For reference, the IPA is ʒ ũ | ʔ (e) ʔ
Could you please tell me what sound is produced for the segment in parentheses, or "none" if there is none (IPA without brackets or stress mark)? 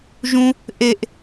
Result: e